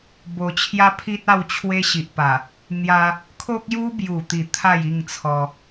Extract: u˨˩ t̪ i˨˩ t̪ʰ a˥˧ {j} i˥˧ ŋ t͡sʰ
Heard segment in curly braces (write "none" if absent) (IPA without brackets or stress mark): j